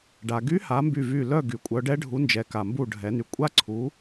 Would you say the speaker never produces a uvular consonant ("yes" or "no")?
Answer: yes